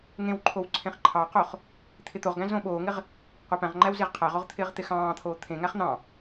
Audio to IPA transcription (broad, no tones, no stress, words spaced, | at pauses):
ŋẽwǃʰow ǀʰẽχǃʰɑqoχ | t̪ʰɪt̪oʁɡæ̃ zõɓoːŋɪʁ | qʷapæ̃ʁŋ͡ǃæw zeʁqʰæʁoʁ t̪ʰɪːʁt̪ɪxɑ̃ːt̪ʰoː t̪ʰẽŋæχ n̪ɑ̃